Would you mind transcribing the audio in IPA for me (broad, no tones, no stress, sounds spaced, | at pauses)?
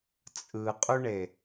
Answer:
t͡sʼ ɯ qʼ u ɳ e